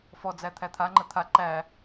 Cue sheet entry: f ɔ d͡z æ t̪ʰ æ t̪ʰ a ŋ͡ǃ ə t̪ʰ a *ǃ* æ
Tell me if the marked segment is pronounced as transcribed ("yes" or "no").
yes